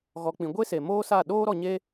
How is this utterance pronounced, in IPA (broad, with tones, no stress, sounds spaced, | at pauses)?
ɣ ɔ˧ k͡p ĩ˧ ɡʷ e˦ s e˨ m oː˦ s a˦˨ ɗ oː˦ ɾ ɔ˧ ɲ e˦